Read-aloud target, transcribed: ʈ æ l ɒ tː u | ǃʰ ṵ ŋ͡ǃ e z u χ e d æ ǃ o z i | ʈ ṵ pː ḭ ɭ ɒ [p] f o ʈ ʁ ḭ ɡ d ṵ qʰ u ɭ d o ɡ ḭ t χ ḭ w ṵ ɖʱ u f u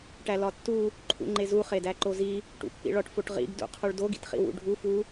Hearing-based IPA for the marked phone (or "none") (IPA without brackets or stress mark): ʈ